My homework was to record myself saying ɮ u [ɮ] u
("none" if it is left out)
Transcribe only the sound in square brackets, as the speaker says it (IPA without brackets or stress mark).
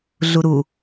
ɾ